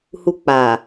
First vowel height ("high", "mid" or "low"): high